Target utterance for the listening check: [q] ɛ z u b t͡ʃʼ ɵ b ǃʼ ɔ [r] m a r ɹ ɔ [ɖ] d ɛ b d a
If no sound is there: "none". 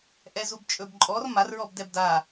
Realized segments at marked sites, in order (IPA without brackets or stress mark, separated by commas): ʔ, r, b